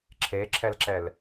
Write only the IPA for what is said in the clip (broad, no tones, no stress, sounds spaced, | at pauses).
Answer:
ǁʰ e ǁʰ ɛ l ǁ ɛ l